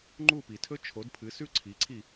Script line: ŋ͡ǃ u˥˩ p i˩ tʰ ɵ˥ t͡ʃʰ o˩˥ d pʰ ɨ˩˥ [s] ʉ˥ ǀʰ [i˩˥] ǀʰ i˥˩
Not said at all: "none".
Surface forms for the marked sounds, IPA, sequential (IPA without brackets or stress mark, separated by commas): s, i˩˥